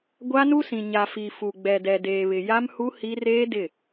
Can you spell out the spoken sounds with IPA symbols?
ɡʷa˦nu˦sĩ˨ ɲa˨fi˨ fu˨ ɡ͡bɛ˨dɛ˨ deː˨βɪ˨ ja˦mhu˦ hi˦ reː˦ dɪ˦˨

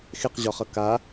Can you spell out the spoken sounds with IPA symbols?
xeqʑɒχʌ ka

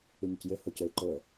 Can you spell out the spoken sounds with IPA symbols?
yɲucjø hocøɪ̯ǃoə̯

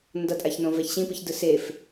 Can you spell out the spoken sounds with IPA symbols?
ndʌtʼaçnõ vɛçɕĩpɯçdɯ sef

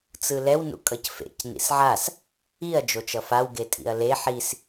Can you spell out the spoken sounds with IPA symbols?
t͡sɯlɛw nṵkʼʌcfḛc nḭsʕas | iɐ̯ d͡ʒot͡ʃʌfaw ɡetʼḭɐ̯le ħis

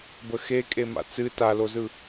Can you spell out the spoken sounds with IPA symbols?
bəxe kʼema̰t͡sɨ talozɯ

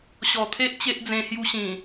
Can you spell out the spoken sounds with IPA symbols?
ɕɔ˨˩t̪ʰe˦ʔ t͡ɕe˦ʔd͡zẽ˧hju˧ɕĩ˨˩

